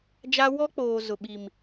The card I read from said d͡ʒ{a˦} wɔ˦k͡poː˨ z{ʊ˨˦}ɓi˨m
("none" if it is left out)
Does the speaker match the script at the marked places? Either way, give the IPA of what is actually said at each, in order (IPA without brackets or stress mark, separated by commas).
a˦, ʊ˨